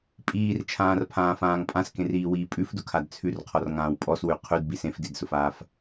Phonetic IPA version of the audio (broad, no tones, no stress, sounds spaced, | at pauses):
pʼ iː r t͡ʃʰ ãː r pʰ ãː f ãː ŋ pʼ ã s k ẽ r iː w iː pʼ ʉ f d ʊ kʰ a d t͡sʰ ʉ r qʰ ɔ r ŋ ãː w pʼ ɔ s w ʉ qʰ ʉ d b i s ẽ f d i d s ʊ f aː f